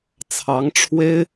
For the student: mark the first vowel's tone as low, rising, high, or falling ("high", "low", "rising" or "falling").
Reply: rising